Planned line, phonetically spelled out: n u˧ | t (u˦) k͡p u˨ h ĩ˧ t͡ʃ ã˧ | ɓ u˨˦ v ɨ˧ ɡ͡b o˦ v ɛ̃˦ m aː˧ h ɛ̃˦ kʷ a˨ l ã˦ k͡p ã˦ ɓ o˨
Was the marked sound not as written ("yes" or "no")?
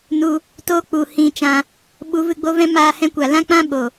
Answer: yes